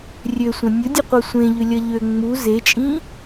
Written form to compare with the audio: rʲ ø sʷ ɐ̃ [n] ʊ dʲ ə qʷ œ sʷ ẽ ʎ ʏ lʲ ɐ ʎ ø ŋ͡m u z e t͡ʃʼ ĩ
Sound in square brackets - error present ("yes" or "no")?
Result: yes